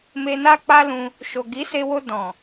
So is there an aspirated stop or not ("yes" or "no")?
no